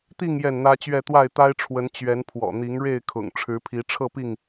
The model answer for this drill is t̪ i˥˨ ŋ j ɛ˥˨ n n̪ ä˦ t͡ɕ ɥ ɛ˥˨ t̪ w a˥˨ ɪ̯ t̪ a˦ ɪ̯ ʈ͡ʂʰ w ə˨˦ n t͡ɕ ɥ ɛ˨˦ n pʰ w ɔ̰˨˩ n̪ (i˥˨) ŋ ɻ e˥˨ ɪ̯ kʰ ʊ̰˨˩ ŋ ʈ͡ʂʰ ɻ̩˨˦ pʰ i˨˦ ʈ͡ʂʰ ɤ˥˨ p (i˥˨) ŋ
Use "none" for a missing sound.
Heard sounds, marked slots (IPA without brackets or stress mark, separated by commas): i˨˦, i˥˨